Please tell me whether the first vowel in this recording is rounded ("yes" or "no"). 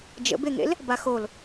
no